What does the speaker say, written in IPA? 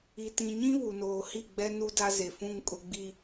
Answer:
i˨tĩ˨ɲĩ˦ βu˨noː˨hi˦˨ɡ͡bɛ˦ nu˦da˦ze˨fũ˦˨ŋ kʼʊ˨ɡ͡bi˨

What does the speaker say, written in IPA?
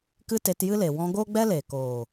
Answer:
kɨ˦te˧tjɨ˦le˨ wɔ̃˧ɡo˦ ɡ͡bɛ˦le˨koː˨

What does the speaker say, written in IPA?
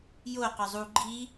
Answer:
jo qœzˤu ɡ͡ǃi

